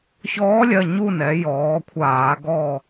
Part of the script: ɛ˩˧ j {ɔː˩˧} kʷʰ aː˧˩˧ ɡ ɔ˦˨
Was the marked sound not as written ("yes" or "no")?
no